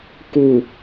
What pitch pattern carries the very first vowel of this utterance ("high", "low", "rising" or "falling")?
low